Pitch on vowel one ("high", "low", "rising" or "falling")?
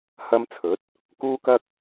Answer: high